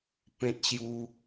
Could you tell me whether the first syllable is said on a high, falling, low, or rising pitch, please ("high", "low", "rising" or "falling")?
high